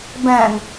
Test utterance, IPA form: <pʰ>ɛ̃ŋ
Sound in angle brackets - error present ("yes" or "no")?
yes